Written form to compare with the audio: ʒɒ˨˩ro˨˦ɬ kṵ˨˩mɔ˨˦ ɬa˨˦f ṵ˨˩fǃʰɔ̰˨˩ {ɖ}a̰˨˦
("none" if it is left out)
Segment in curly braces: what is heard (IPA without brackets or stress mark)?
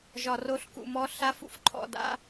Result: d